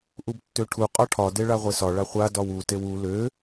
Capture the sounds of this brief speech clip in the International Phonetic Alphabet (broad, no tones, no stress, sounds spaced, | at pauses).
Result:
ʔ u b tː ø ʈʰ u qʼ ɒ ʈʰ ɒ d e ɭ a ʁʷ e s ɒ ɭ a χʷ a d ɒ w u t e w u l ø